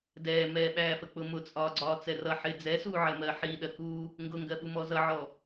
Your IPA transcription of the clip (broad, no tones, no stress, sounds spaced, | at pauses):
d ɛː m ɛː ɓ æː f ə k͡p ʊ m ʊ t͡sʼ ɒː ɡ͡ǀ ɒː t͡s ɛ r ʌ ħ ɪ d͡z ɛ s uː ʕ ɜ m ɜ ħ i ɗ ɜ k uː | ŋ ɡ ʊ ŋ ɡ ɜ ɓ u m ɔ z ʌ ʕ ɔ